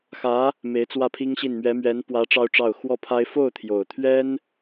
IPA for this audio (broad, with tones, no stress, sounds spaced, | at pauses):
x ä˧˥ | m e˧˥ ɪ̯ t͡s w ä˥˩ pʰ i˥ ŋ ɕ i˥˩ n m ɥ ɛ˧˥ m ɥ ɛ˧˥ n p w ä˧˥ ʈ͡ʂ ɑ˥ ʊ̯ ʈ͡ʂ ɑ˥˩ ʊ̯ x w ɔ˥ pʰ a˥ ɪ̯ f o˥˩ ʊ̯ t̪ʰ j o˨˩ ʊ̯ t̪ʰ ɥ ɛ˥ n